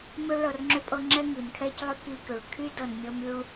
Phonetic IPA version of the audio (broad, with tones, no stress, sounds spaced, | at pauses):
m ʏ˥ ɭ ɤ˧ r ŋ͡ǁ ʏ˥ pʼ ɤ˥ ŋ͡ǁ ɛ˥ ŋ i˩ n kʰ ɛ˥ c lˠ ʏ˥ k i˧ k ʏ˩ ɭ kʰ y˥ d ɤ˧ n mʲ ɤ˥ m y˥ ɭ